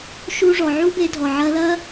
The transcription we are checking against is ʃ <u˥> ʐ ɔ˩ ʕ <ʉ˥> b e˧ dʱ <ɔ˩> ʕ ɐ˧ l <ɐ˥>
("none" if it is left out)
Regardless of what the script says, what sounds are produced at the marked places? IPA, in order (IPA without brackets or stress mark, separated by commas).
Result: u˧, u˥, ɔ˩, ɐ˥